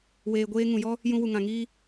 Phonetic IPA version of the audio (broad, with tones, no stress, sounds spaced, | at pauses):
w eː˨ ɡʷ eː˧ ŋ ũ˨ j ɔ˦ | j ũ˧ w u˨ ŋ ã˨ ŋ iː˧